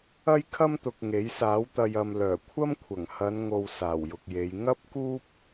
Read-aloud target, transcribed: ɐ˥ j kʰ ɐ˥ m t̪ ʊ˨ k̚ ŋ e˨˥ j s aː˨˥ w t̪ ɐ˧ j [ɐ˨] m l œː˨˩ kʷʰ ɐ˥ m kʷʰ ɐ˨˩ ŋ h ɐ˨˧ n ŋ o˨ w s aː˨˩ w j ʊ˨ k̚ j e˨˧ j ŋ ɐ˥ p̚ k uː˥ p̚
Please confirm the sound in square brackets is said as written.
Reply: yes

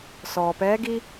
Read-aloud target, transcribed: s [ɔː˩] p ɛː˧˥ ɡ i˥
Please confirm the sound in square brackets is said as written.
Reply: yes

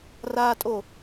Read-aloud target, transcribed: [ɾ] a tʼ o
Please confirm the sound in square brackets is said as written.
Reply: no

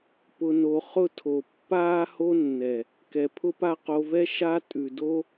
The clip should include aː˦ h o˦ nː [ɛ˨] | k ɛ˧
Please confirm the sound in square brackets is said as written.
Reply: yes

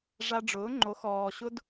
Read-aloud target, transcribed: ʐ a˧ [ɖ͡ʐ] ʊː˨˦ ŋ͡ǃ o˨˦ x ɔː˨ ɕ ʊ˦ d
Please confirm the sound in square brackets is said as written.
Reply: yes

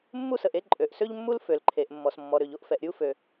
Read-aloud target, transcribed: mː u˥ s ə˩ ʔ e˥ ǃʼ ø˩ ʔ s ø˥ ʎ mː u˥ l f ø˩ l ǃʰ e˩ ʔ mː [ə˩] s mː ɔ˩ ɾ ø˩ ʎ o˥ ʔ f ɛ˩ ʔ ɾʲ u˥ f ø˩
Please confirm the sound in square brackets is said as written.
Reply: no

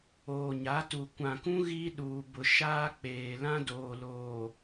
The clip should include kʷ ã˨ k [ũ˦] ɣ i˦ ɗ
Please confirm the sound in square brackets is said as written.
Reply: yes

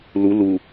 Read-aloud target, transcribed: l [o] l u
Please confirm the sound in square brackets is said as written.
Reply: no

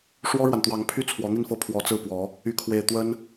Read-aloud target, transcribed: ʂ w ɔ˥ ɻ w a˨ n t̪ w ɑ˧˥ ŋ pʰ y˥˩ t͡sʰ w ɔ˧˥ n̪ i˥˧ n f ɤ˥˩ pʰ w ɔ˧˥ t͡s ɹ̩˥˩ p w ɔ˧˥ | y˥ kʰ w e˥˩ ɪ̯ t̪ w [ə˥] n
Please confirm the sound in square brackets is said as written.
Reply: yes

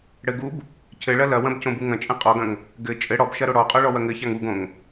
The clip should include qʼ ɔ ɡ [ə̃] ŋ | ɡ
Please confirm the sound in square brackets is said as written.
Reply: no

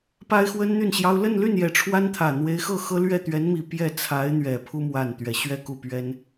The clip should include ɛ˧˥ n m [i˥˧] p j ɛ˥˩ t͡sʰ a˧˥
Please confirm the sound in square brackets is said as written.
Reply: no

